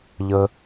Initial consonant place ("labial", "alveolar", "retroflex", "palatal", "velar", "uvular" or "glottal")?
palatal